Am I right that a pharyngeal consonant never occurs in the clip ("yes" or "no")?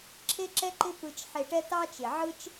no